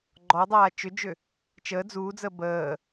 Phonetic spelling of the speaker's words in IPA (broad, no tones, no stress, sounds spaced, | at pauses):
ɡ͡ǃ ɔ dˤ aː t͡ʃ ʏ d͡ʒ ʏ | t͡ʃ əː d͡z uː d͡z əː b əː